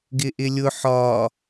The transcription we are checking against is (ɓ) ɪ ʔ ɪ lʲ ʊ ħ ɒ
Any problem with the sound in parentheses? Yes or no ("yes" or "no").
yes